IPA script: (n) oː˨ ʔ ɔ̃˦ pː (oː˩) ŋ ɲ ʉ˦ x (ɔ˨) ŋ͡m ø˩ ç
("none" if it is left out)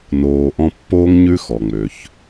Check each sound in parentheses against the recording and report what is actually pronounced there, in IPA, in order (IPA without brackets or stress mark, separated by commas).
n, oː˥, ɔ˩